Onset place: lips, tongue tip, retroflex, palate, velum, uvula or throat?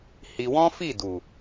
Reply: throat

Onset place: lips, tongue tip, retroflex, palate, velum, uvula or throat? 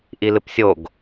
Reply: throat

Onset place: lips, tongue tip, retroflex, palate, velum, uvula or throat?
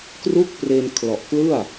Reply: velum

